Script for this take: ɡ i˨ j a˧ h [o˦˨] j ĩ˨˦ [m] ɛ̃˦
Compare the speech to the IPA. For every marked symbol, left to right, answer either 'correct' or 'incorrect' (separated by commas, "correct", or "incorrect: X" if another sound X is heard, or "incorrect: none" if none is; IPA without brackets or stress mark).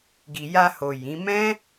incorrect: o˨, correct